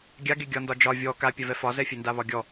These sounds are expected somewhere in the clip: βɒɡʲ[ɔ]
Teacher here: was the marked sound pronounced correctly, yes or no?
yes